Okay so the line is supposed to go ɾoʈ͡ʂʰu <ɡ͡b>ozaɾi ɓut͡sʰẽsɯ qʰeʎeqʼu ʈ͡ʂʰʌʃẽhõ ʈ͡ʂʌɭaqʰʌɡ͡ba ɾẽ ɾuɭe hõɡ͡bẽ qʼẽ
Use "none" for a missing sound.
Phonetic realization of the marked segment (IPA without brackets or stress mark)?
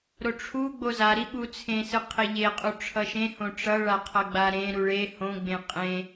ɡ͡b